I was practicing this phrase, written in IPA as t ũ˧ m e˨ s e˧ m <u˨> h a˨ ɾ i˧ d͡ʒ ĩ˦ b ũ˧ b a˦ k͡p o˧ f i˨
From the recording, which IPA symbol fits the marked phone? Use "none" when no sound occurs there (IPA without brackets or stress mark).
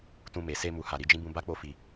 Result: u˨